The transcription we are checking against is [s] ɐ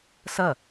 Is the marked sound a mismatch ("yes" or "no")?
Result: no